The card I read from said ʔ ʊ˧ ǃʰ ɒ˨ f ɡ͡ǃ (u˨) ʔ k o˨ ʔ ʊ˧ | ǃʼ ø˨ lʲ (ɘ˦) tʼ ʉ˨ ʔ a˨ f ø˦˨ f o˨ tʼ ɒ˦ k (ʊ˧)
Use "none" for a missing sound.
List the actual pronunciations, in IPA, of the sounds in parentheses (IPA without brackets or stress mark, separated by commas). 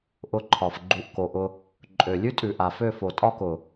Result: u˨, ʉ˦, ʊ˨